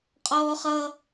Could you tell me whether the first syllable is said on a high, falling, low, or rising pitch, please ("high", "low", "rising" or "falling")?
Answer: high